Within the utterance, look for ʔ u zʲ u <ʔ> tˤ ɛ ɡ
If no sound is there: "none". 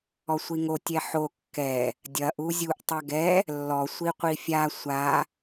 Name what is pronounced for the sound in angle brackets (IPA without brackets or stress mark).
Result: ʔ